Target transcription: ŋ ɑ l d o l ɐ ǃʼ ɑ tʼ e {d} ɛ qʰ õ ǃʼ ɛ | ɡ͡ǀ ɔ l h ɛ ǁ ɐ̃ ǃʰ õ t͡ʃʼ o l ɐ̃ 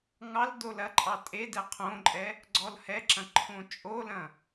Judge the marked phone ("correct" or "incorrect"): correct